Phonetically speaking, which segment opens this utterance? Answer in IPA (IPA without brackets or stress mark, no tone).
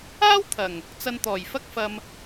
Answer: aː